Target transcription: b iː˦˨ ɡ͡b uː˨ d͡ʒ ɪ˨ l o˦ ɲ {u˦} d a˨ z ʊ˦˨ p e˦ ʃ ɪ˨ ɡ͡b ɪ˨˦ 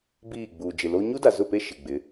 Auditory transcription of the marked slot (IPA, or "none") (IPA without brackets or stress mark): u˦